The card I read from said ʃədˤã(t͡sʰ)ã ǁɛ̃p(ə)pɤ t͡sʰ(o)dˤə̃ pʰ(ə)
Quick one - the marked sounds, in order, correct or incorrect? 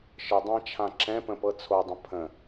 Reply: incorrect: t͡ʃʰ, incorrect: ə̃, correct, incorrect: ə̃

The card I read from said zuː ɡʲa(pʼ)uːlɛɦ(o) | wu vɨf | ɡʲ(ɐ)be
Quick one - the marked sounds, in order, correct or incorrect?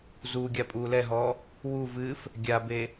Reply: correct, incorrect: ɔ, incorrect: a

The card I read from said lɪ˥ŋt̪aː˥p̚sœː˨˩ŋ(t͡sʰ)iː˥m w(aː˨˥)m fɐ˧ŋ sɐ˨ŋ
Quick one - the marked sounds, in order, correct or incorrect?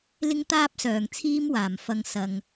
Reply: correct, incorrect: aː˨˩

